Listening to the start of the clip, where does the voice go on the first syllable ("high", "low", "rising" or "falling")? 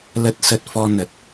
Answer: low